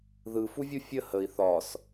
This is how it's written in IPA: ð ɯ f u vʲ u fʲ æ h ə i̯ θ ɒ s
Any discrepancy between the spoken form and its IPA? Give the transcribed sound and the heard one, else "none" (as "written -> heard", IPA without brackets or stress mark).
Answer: æ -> ə